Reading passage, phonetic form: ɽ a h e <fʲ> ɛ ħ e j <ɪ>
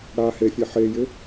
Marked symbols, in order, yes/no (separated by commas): yes, yes